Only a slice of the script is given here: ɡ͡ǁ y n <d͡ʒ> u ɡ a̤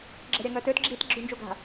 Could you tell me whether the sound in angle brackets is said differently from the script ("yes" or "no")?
no